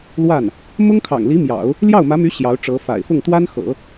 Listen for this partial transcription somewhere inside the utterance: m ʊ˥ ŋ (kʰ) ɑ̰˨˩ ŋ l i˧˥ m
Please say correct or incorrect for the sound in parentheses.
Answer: correct